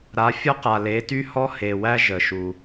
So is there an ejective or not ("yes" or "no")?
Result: no